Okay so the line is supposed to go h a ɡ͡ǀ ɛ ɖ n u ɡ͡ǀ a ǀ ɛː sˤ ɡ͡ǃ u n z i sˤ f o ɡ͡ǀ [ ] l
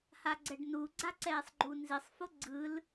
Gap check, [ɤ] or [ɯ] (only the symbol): ɯ